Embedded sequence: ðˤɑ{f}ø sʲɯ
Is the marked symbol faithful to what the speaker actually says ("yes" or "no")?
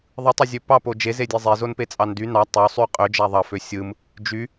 yes